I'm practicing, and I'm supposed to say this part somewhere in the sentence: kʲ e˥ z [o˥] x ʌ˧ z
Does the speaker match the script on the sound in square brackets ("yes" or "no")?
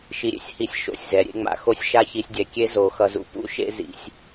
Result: no